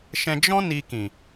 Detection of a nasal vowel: present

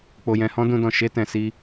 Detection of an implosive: absent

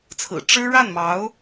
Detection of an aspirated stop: present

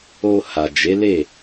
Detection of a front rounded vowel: absent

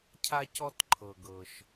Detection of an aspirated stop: present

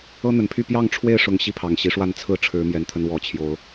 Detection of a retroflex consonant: present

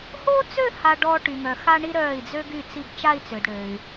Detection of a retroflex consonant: present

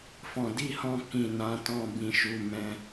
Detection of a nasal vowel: present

